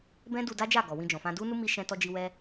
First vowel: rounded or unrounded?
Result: unrounded